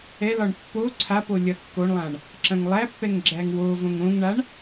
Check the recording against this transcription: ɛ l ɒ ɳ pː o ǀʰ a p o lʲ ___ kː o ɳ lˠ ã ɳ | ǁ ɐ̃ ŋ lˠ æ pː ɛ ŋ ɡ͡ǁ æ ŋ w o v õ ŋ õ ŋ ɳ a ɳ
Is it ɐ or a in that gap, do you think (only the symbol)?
ɐ